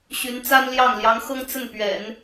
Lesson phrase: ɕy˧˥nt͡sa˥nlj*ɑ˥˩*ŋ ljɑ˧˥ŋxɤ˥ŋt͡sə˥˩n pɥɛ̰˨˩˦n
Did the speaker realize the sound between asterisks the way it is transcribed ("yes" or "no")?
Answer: yes